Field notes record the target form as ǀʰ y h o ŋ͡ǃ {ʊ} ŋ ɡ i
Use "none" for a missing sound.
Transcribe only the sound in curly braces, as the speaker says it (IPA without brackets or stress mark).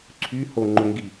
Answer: ʊ